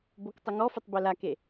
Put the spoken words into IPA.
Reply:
b o k tˤ ʊ ŋ ɔ f ɪ tˤ b e l a k e

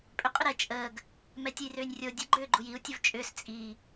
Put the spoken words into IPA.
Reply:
pʼ ʏ qʼ ʏ ɾ ɛ t͡ʃʼ əː ɡ | m ɛ tʲ ə j r ʏː nʲ rʲ o dʲ ə ɡ͡ǃ ʏː ɡ͡ǃ u j i u̯ tʲ ə v t͡ʃʼ ʏː s t͡sʼ i

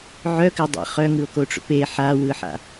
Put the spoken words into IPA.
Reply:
ʕ œ k ɘ dˤ a̰ χ œ ŋ ɯ o̯ k o ʈ͡ʂ o̰ p e ħ a w ɯ ħ a̰

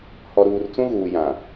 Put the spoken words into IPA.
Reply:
h ɔ˨ ɾ uː˨ r t͡s ũ˦ ɣ uː˨ j ã˨

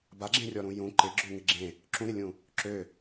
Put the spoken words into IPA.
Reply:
b a ɡ͡ǁ ẽ rʲ ɔ ɾ ũ j ũ ǃ ɪ ɡ͡ǁ ʏ ŋ ɪ ɡ͡ǁ ẽ | ǁ ũ ɾ ɪ lʲ ũ | ǁ ø

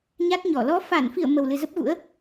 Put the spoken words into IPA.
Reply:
ɲ a˦˥ t̚ ɲ ɔ˧˩ l ɔ˨˦ f a˧˩ n f i˧˩ ə̯ m ə˨˩ w l ɨ˨˩ z ə˦˥ p̚ ɣ ṵ˧˥ ə̯

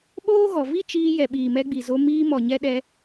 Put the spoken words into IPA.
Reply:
ɓ oː˦ ɣ ɔ˨ v i˦ t͡ʃ iː˧ j ɛ˨ ɓ iː˨ m ɛ˧ ɡ͡b i˨ z o˧ m iː˧ m ɔ˨ ɲ ɛ˧ ɗ ɛ˧

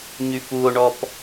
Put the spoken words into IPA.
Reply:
ɲ y f u o̯ ɳ ɔ p

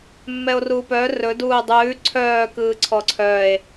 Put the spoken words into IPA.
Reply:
mː ɛ o̯ r uː p œ r ɵ d uː dˤ ʉː ǀʰ œː k ɯː ǀʰ ɔ ǀʰ œ e̯

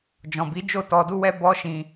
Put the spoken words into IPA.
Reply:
d͡ʒ ɔ̃˨ b i˨˦ d͡ʒ o˦˨ t ɔ˧ d u˦ w ɛ˦ b ɔ˦ ʃ ĩ˧

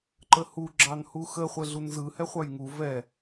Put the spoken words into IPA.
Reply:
ǃ ə h u ɡ͡ǁ ɑ n h u x ə χʷ ɛ ɮ u n z ɯ h ɛ χʷ ɑ j ŋ u v ɛ

